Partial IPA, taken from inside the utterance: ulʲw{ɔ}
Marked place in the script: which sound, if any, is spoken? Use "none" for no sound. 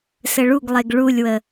ə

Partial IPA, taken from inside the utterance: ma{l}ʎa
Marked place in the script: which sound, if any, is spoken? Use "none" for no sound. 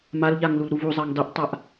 l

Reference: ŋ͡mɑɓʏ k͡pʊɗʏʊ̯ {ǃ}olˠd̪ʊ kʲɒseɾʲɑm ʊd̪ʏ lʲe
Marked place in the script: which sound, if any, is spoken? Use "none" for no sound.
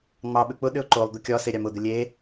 ǃ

